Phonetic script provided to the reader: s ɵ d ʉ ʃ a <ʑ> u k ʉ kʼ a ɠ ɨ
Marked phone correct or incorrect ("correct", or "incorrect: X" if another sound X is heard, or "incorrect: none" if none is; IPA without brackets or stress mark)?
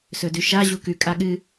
correct